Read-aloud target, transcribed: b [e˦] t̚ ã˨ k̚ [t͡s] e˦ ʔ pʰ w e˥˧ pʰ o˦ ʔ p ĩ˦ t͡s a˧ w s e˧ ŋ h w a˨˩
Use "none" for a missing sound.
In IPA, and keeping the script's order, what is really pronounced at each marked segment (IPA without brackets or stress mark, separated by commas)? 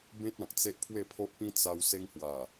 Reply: ẽ˦, t͡s